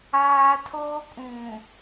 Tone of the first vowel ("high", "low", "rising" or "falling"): high